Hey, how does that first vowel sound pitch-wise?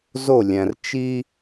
falling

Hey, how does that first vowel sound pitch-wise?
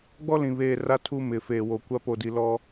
high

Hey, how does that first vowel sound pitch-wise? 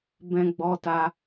high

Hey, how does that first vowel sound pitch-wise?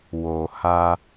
low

